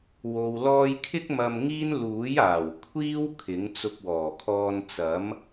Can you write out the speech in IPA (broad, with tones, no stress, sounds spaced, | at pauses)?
w o˨ w l ɔː˧ j kʰ ɪ˥ k̚ m ɐ˧ m ŋ iː˥ n l uː˨˥ j aː˨˩ w kʷʰ iː˥ w kʰ ɪ˨˥ ŋ t͡s ʊ˧ k̚ w ɔː˨˩ kʰ ɔː˧ n t͡s ɐ˨˥ m